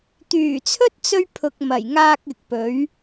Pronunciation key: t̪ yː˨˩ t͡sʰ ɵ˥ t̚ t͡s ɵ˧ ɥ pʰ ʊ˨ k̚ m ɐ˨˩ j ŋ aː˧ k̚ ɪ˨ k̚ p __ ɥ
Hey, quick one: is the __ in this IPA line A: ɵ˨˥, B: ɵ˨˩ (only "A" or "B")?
A